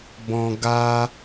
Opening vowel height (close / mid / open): mid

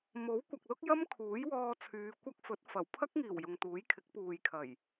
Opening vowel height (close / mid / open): mid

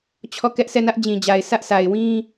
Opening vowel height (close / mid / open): mid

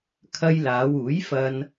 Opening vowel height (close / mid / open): open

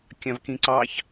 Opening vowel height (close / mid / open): open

